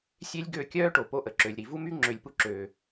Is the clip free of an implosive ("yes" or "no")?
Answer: yes